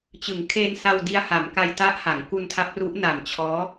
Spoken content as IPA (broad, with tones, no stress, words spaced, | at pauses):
t͡ɕɯ˩˦ŋkʰeː˧n sa˧wdi˧a̯ha˩˦mka˧j ta˦˥ʔha˩˦ŋ ku˧ntʰa˦˥p̚ru˦˥ʔ na˨˩mt͡ɕʰɔː˦˥